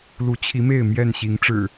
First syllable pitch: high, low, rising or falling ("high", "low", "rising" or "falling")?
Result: rising